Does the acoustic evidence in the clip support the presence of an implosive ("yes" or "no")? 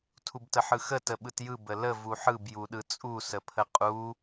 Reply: yes